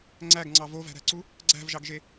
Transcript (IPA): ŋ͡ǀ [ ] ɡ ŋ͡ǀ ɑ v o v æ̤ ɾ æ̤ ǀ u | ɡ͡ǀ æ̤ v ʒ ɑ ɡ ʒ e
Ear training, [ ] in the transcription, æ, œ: æ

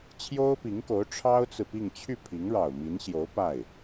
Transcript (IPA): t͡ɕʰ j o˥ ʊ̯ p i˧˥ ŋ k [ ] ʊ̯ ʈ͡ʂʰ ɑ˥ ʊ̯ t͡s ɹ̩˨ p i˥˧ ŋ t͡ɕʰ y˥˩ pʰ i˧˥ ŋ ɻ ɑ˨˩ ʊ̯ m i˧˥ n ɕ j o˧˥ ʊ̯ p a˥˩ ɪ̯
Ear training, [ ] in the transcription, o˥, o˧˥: o˧˥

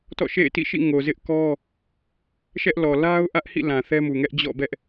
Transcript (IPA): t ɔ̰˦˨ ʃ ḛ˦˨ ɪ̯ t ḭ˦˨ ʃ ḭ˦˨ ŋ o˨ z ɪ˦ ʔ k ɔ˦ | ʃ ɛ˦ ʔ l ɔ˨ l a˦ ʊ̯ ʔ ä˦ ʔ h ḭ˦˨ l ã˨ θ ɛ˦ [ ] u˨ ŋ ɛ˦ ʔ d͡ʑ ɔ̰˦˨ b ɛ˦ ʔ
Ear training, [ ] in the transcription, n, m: m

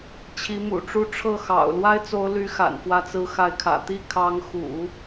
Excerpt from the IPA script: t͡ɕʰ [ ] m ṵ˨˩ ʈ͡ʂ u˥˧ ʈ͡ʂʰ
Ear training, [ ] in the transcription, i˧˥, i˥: i˧˥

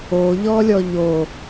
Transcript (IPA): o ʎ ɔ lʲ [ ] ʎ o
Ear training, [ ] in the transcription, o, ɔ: ɔ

